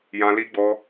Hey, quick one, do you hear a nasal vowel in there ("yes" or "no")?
yes